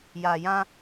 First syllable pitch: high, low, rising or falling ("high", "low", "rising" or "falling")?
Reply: low